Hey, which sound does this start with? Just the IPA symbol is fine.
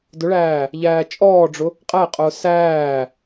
d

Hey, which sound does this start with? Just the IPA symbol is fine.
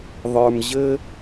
ðˤ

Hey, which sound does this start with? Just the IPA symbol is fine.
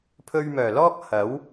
pʰ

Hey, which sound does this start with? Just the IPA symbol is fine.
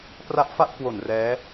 p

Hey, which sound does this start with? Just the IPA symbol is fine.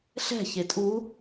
ɬ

